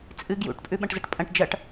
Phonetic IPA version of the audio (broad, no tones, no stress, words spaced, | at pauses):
t͡sʼɨ ɡjṵʈ pʼʉɓɐ̃ʈzɐʈpʼɐ̃ʈ d͡ʒɐʈ